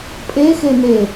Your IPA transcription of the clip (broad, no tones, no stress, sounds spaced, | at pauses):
pʼ e x e n̪ e